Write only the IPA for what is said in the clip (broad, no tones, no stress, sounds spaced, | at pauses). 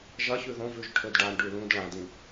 ʒ ɐ ç ʉ ð õ v ʉ ʒ ʈʰ ɵ d ɖ a ɳ ɖ ʉ l ũ d ɭ ã d ĩ